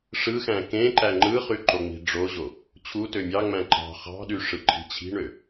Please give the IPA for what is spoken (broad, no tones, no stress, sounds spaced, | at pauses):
ʂ ɯ x æ̃ k ẽ ǃ æ ŋ͡ǃ ɯ χ y ǃ o ŋ͡m i̤ ɖ͡ʐ o ʑ o | t͡ɕʰ u t ø mʲ ɑ ŋ͡m æ̃ ǃ ɑ̤ χ ɑ̤ ɗ y ʂ ɯ ǃʰ i̤ t͡ɕʰ i̤ ɳ ø